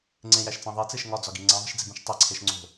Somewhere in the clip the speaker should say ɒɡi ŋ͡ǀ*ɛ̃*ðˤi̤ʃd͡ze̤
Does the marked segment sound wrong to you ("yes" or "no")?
yes